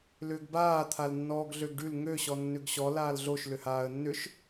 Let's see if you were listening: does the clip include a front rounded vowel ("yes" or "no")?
yes